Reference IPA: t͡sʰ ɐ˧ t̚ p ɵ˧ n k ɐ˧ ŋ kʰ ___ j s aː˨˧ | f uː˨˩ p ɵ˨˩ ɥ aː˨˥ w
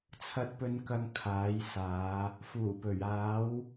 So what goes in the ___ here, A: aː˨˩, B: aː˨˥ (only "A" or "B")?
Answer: B